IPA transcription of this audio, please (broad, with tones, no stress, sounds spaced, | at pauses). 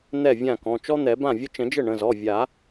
n̪ ɛ˥˩ vʲ ã˥˩ k ɔ̃˩˧˩ t͡ʃ ɔ˥ n̪ ɛ˨˩˦ b ã˥˩ vʲ ə˥ t͡ʃ ə̃˨˩˦ d͡ʒ ə˥˩ ɳ ə̃˩˧˩ z ɔ˩˧˩ vʲ a˨˩˦